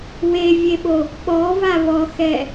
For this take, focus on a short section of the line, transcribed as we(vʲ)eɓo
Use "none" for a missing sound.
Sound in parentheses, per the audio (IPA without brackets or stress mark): vʲ